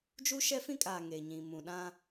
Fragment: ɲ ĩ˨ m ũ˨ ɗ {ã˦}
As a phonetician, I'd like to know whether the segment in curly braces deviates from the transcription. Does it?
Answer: no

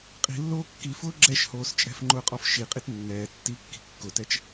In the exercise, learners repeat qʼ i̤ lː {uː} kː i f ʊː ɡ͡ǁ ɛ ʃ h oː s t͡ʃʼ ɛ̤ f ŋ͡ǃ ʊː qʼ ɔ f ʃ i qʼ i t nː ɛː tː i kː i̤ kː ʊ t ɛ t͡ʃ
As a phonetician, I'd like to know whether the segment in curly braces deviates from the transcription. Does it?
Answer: yes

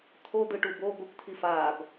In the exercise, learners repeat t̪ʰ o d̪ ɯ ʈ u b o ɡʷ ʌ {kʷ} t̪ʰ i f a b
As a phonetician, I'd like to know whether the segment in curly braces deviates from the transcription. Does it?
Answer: no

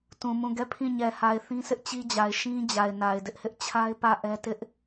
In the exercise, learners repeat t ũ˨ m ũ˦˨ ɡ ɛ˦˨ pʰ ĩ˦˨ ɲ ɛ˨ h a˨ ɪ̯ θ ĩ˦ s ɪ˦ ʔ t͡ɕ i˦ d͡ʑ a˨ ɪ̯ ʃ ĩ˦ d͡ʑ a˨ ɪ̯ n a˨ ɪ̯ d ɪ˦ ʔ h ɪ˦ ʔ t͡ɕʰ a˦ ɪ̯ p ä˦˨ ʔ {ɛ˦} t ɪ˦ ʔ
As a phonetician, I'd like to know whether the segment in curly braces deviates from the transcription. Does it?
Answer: no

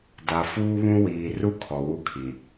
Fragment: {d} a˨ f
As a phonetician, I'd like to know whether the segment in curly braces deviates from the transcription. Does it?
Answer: no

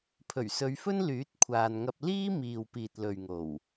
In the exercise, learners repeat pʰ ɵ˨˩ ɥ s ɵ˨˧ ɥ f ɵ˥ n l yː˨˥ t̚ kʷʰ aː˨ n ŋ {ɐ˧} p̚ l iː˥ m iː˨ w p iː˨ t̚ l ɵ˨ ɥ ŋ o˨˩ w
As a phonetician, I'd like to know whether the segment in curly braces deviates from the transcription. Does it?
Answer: no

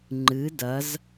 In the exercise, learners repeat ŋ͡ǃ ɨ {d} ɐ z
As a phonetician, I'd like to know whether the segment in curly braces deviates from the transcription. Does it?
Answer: no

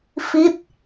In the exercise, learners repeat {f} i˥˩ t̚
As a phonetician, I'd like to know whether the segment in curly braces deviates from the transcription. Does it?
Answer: no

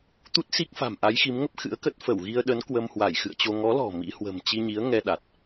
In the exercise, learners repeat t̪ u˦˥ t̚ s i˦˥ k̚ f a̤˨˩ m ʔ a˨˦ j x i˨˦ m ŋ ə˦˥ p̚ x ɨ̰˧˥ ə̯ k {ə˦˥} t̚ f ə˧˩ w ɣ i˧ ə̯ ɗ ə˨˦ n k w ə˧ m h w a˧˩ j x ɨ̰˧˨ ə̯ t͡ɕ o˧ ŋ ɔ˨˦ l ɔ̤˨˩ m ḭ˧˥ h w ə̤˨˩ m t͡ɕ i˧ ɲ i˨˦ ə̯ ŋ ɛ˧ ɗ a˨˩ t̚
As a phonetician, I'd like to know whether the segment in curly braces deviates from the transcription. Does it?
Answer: no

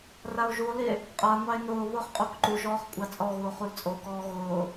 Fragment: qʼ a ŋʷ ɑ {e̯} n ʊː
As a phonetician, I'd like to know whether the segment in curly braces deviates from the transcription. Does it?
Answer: no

